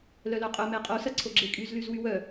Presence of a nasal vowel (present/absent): absent